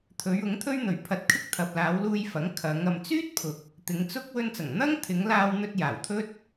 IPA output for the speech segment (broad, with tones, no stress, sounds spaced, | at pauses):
t̪ʰ ɵ˨˧ ɥ ʊ˨˥ ŋ t̪ʰ ɵ˥ ɥ n̪ ɵ˨ ɥ pʰ ɐ˧ t̚ kʰ ɪ˥ k̚ t̪ʰ ɐ˨ p̚ l aː˨˧ w l uː˧ j f ɐ˨˥ ŋ kʰ ɐ˨˧ ŋ ɐ˨ m t͡s yː˥ t̚ pʰ ʊ˨ k̚ | t̪ ɪ˨˧ ŋ t͡s ʊ˥ k̚ w ɵ˧ n t͡s ɐ˨˩ ŋ n̪ ɐ˥ ŋ t̪ʰ ɪ˨˧ ŋ l aː˧ w n̪ ɵ˧ t̚ j aː˨˩ w t̪ʰ ɵ˥ t̚